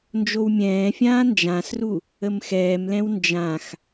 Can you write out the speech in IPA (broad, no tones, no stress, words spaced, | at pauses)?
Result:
nd͡ʒowmʲɛ̃ːfʲãː nd͡ʒãsru | əmxɛːmlɛ̃w nd͡ʒãx